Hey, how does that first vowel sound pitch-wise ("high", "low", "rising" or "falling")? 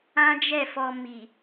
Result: high